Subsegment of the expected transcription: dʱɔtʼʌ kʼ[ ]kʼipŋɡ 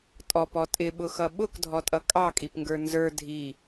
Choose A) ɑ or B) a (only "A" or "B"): A